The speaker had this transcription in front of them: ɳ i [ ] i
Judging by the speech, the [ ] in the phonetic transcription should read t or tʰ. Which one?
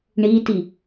t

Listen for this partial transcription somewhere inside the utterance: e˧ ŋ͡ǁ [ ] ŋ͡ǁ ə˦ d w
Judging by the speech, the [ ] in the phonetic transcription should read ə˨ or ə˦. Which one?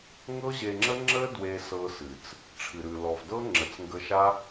ə˦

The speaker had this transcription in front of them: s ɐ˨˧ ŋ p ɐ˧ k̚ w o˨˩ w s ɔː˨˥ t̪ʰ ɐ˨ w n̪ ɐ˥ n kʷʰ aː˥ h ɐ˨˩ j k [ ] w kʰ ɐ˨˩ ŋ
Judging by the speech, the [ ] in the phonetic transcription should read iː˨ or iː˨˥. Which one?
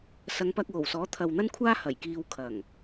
iː˨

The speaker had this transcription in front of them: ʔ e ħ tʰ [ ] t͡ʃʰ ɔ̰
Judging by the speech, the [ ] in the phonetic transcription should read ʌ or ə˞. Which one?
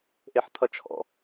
ʌ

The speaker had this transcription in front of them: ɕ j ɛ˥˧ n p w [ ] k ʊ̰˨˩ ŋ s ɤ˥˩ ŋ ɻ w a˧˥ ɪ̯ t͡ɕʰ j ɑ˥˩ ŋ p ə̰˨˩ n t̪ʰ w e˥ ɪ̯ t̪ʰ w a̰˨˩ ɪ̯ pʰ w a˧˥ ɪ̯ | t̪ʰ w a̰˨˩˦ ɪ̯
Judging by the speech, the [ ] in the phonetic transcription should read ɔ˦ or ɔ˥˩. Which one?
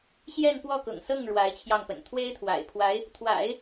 ɔ˥˩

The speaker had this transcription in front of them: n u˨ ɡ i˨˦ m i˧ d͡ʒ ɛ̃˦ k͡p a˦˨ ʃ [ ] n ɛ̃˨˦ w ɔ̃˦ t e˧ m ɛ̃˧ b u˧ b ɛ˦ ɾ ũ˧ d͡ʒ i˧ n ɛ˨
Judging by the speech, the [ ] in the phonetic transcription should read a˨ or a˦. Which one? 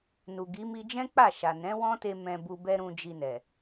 a˨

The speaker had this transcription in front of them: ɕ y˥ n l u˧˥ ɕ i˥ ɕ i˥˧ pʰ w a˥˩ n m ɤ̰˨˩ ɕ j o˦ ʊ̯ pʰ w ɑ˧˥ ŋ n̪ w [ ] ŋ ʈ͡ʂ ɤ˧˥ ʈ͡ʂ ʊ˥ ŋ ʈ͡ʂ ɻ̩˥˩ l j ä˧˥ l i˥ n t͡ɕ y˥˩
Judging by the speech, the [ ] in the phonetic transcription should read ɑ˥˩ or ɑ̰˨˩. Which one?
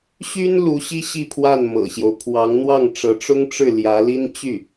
ɑ˥˩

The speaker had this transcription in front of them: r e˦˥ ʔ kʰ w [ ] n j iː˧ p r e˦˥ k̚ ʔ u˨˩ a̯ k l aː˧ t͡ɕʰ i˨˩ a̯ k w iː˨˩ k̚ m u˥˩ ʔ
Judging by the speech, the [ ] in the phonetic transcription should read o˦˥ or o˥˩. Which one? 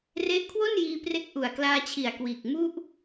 o˥˩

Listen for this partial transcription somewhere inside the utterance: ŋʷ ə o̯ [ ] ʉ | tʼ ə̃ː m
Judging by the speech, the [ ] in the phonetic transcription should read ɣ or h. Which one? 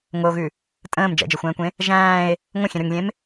ɣ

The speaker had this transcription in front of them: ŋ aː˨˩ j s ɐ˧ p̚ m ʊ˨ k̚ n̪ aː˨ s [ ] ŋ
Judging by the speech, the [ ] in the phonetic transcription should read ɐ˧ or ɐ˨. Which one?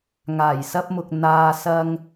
ɐ˧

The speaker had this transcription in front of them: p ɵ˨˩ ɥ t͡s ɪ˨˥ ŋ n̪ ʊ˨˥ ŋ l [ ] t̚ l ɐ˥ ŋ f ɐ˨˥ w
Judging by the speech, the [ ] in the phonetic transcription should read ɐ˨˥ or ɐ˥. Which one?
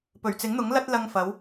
ɐ˥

